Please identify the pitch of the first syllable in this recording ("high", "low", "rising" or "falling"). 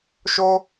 high